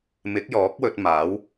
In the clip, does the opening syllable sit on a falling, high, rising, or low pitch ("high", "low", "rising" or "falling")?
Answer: rising